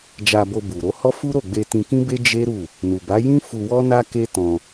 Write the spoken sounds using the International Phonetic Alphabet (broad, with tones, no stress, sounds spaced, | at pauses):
d͡ʒ a˧ b o˧ b u˨ ɾ o˨˦ h ɔ˦ f u˦ ɾ o˦˨ ɡ͡b e˧ t ĩ˧ k ĩ˦ b e˦ d͡ʒ e˦ ɾ u˦˨ | n u˨ b a˨˦ j ĩ˦ f u˧ w ɔ˦ n a˦ k e˦ t ɔ̃˧